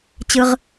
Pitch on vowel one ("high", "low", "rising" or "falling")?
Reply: low